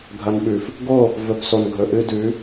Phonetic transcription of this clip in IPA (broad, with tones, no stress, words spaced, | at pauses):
ɡʱɐ˨nɓʉ˨f | ɡo˦˨ | vɵ˨pso˨nɡʱɵ˨ ʔɨ˧dʉ˨˦